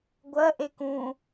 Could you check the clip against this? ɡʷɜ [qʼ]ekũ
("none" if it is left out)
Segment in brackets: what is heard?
ʔ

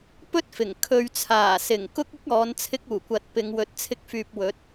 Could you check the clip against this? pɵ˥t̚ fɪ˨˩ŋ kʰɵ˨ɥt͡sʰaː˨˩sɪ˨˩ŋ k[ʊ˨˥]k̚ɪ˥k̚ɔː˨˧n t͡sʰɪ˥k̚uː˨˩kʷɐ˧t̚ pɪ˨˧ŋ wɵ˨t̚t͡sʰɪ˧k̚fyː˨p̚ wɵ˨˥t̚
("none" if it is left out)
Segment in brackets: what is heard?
ʊ˥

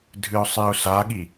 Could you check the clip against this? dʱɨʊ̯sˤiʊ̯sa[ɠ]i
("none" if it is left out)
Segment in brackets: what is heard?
ɠ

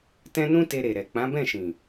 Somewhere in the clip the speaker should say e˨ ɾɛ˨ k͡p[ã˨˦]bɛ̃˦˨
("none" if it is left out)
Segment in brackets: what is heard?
ã˨˦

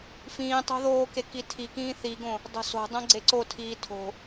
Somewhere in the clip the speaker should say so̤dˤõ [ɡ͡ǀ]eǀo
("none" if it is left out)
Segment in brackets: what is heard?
ɡ͡ǀ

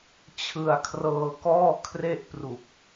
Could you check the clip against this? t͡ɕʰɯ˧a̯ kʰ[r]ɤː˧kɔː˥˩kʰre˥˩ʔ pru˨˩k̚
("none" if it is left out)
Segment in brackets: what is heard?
r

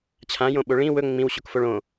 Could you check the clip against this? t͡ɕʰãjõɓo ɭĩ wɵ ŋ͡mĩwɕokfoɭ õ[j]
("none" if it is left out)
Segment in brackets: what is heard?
none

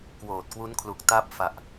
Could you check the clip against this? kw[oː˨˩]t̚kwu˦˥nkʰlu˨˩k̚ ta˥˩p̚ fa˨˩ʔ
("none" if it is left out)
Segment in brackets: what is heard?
oː˨˩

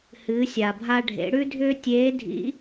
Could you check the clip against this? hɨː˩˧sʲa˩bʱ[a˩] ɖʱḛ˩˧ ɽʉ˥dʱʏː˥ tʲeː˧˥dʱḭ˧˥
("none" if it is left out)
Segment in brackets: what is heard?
a˧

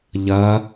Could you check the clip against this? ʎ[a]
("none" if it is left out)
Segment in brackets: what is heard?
ɐ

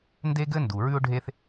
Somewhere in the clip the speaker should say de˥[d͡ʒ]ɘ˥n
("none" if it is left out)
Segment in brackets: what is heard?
ɡ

